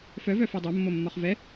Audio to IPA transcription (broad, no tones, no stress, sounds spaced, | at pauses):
f œ v œ f ɛ dˤ o mː o mː ɒ χ v ɛ